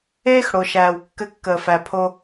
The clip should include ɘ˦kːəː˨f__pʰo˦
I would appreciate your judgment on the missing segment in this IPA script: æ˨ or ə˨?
æ˨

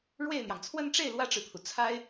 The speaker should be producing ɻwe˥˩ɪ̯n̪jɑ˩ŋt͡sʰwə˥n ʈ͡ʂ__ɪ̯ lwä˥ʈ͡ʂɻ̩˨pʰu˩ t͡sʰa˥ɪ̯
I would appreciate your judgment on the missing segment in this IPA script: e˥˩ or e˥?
e˥˩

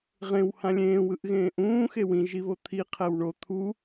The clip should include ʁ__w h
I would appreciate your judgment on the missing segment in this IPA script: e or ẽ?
ẽ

